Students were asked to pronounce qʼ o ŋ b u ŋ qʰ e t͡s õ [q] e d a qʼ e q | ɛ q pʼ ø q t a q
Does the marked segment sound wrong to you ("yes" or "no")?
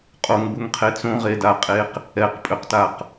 yes